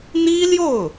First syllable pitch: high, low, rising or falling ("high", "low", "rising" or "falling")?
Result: high